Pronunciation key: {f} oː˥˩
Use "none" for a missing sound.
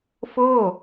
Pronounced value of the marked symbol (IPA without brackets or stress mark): f